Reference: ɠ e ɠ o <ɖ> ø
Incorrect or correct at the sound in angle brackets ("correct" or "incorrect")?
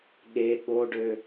correct